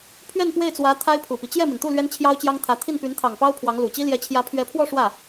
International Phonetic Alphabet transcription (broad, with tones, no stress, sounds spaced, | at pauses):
pʰ ɥ ɛ˥˧ n p w e˥˩ ɪ̯ t͡s w ä˧˥ t̪ʰ a˥ ɪ̯ pʰ u˨˩ p i˦ t͡ɕ j ɛ˥˩ m i˩ n t̪ u˥˩ l ɥ ɛ˥ n t͡ɕʰ j ɑ˥ ʊ̯ t͡ɕ j ɑ˥ ŋ t̪ʰ ä˧˥ t̪ʰ i˥˩ n p y˧˥ n t̪ʰ ɑ˨˩ ŋ p ɑ˥ ʊ̯ pʰ w ɑ˧˥ ŋ l u˨˩ t͡ɕ i˥ l j ɛ˧˥ t͡ɕʰ j ä˧˥ pʰ ɥ ɛ˧˥ pʰ w ɔ˥˧ ʂ w ä˥˩